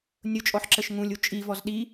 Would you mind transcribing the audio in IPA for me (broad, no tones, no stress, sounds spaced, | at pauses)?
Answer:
nʲ ʊ t͡ʃʼ ɔ ħ ǁ ə ʃ ŋ ũ lʲ u t͡ʃʼ i v ɔ z ɗ i